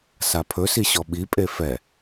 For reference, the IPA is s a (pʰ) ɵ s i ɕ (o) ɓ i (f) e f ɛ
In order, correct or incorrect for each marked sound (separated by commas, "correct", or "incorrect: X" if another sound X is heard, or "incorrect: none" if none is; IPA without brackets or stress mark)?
correct, incorrect: ɔ, incorrect: pʼ